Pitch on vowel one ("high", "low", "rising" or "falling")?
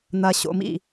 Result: low